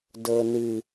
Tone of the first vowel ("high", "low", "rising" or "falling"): low